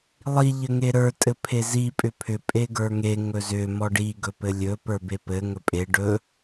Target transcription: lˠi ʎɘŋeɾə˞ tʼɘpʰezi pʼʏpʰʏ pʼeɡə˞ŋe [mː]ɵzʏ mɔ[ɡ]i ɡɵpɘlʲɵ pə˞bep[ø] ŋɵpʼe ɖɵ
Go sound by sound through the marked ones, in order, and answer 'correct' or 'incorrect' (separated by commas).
incorrect, incorrect, incorrect